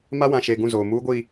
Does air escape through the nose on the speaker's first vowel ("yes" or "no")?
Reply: no